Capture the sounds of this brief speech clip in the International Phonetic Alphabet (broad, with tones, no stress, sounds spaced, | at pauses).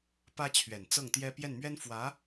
p ä˥ t͡ɕʰ ɥ ɛ˨˩ n t͡s ɤ˥˩ ŋ t̪ j ɛ˥ p j ɛ˥˩ n m ɥ ɛ˥ n f w ä˧˥